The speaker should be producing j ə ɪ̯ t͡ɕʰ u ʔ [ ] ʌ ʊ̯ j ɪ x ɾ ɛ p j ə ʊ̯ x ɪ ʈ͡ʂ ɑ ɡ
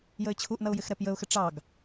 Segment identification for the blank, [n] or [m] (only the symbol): n